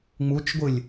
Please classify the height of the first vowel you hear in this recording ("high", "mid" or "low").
high